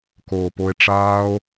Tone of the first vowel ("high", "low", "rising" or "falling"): low